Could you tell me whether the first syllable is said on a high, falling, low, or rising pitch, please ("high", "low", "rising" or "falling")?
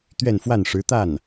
falling